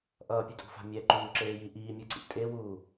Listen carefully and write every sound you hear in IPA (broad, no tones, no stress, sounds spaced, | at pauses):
ʔ ʌː pʲ u tʼ ṳ f a̤ mʲ ɛ ǃ uː ǁ eː j i ʔ iː mʲ ɯ ǀ ḭ tʼ e w uː